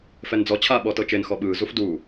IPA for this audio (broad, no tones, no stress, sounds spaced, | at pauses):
f ɛ n d͡z ɔ t͡ɕʰ aː ɓ ɔ t ɤ t͡ʃ e n x ɔ ɓ ɯː z u f d u